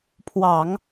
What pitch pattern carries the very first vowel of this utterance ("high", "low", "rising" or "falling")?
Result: low